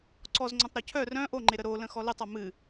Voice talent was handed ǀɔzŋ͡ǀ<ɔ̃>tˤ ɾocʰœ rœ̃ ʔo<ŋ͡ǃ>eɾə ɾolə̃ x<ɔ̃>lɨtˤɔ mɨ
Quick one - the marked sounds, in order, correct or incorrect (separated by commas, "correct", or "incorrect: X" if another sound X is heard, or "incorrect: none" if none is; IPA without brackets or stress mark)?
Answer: incorrect: õ, correct, incorrect: ɔ